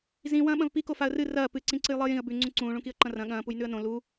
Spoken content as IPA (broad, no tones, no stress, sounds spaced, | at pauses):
z ĩ w ɐ̃ː ɓ ɐ̃ v p i k o f a ə̯ r ɨ r ɐː p ɨ ǀ ĩ ǀ ɨ j lˠ ɨː j ĩ ə̯ b ʉ ŋ͡ǀ ũ ǀ ũː ɭ ũ k i ə̯ ǃ ɐ̃ r ɐ̃ ɠ ɐ̃ː p u j n ʉ ə̯ n õ l u